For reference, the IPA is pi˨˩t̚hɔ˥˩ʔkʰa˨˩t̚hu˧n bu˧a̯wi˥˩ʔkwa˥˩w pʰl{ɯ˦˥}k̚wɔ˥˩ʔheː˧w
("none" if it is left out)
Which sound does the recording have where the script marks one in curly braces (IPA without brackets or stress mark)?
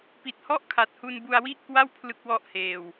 ɯ˦˥